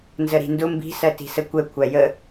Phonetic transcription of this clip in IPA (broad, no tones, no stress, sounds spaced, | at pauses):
n z ə ɾ i̤ n d ʊ m b i̤ s ɜ t i̤ s ə kʷ ɛ kʷʰ æ j ə